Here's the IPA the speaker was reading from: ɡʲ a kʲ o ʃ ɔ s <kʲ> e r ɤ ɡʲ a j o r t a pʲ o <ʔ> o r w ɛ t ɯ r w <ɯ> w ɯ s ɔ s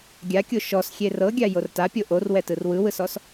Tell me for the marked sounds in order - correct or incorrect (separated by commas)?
incorrect, correct, correct